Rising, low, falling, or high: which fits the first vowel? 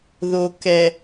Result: low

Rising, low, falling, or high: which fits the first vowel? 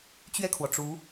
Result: falling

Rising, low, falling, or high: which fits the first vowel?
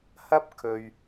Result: high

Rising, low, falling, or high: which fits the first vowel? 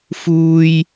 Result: high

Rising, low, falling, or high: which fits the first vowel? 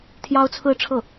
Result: high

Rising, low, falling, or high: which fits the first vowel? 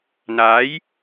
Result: rising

